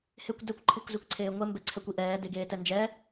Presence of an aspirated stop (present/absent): present